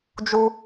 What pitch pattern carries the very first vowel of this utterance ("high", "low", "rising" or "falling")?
high